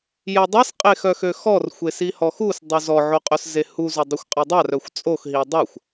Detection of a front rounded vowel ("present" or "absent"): present